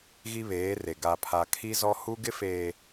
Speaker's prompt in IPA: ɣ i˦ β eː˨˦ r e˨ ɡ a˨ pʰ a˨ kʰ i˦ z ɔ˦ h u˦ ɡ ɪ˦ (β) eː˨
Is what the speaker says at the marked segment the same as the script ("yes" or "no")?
no